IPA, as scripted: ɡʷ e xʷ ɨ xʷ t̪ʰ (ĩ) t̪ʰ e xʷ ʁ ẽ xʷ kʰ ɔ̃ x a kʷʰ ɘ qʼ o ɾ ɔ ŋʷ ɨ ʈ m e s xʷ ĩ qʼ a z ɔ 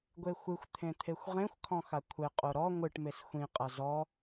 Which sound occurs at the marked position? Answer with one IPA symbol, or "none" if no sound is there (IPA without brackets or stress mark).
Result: ẽ